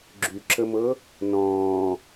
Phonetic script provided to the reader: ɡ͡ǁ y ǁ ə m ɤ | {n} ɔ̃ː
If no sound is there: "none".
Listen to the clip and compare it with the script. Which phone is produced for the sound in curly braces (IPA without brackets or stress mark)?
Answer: n